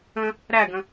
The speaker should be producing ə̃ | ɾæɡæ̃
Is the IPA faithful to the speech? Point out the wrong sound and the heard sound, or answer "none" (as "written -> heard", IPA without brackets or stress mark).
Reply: æ̃ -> ə̃